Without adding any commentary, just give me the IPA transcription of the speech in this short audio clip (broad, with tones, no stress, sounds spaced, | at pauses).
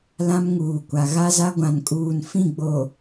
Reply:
l ã˦ m ŋ uː˨ kʷ a˨ ɣ a˦ z a˦ ɡʷ ã˨ n kʼ uː˨ n f ĩ˦˨ ɡ͡b o˨